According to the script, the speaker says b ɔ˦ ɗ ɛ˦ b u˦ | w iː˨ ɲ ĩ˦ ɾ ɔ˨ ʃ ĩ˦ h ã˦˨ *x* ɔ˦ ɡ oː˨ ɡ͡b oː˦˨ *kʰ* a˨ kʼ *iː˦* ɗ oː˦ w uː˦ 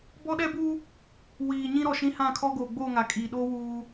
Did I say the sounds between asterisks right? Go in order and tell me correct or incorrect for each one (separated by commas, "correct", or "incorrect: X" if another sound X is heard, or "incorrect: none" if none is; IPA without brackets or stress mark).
incorrect: kʰ, incorrect: ŋ, incorrect: iː˨